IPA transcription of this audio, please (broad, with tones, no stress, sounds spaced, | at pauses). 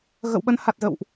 ɣ ə̰˧˨ w ɓ ə˨˦ n h a˨˩ t̚ z ə̰˧˨ w ʔ